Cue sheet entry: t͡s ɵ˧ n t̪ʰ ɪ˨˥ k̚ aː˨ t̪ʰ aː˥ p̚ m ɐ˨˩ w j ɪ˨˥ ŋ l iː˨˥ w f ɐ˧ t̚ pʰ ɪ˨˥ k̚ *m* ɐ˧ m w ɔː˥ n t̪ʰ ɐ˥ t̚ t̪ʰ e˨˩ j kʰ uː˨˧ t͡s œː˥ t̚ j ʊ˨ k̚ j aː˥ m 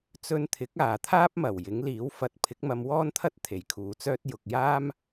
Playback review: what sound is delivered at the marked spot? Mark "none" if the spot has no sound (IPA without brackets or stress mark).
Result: m